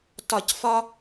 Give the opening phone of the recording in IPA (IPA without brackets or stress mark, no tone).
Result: t